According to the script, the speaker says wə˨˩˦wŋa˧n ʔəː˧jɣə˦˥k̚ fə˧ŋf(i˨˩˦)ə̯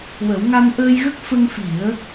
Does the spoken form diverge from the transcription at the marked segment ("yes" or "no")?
no